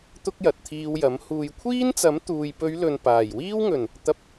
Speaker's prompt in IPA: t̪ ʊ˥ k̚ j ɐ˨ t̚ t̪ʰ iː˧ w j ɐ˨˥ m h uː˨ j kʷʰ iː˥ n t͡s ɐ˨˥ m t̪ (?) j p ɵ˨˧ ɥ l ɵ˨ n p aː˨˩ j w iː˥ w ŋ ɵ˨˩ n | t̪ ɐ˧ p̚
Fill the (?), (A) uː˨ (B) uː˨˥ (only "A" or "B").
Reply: A